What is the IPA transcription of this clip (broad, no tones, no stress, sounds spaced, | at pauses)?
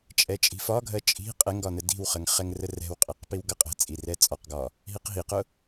t͡ʃʼ ɛ t͡ʃʼ i̤ f ɒ ɡʱ ɜ t͡ʃʼ i̤ qʼ ɛ ŋ ɡ ɒ n ə d i̤ w χ ə ŋ χ ɛ ŋ r ə r ɛ̤ w qʼ i q p i w ɡ ʌ qʼ ɛ̤ t͡sʼ i r ɛ t͡sʼ ɒ q ɡ ɒ | ɦ i q ɦ i q ʊ